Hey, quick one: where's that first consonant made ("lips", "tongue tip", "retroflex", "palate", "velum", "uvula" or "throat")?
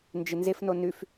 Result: tongue tip